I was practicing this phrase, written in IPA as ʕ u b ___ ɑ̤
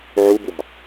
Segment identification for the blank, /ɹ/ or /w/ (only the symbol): w